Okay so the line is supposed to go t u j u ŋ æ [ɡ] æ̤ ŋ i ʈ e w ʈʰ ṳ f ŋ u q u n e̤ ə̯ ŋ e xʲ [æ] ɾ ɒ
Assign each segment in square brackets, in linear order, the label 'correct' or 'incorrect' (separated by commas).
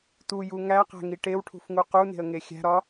incorrect, incorrect